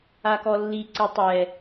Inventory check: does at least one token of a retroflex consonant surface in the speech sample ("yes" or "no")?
no